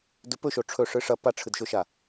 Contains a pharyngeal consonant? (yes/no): no